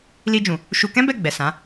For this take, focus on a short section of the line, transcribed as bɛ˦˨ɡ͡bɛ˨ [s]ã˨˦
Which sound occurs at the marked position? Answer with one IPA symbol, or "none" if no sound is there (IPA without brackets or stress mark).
s